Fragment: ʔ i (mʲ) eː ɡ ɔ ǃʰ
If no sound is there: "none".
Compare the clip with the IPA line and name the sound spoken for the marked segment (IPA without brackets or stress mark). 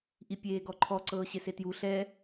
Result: pʲ